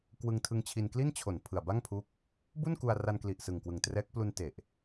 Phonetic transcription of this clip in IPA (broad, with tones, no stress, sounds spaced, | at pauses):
k w ɯ˧ ŋ tʰ ɯ˧ ŋ t͡ɕʰ i˧ n k l i˥˩ n t͡ɕʰ o˨˩ n pʰ ɯ˨˩ a̯ b a˥˩ ŋ pʰ u˦˥ k̚ | b u˥˩ n k u˧ a̯ r a˧ n k l i˨˩ ʔ s ɯ˨˩ ŋ k w ɯ˨˩ ŋ t r ɛː˦˥ k̚ p l u˧ n t e˨˩ ʔ